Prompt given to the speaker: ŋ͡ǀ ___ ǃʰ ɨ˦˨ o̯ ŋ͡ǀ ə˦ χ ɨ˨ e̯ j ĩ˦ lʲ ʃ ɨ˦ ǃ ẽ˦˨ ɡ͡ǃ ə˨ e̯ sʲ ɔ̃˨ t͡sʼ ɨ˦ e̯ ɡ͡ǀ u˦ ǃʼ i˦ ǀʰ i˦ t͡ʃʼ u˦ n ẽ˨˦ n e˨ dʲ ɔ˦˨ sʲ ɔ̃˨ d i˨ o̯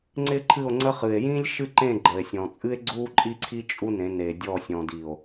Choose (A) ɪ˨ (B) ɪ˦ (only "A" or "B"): B